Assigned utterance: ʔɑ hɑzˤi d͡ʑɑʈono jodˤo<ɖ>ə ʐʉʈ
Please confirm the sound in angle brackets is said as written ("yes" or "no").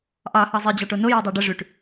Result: yes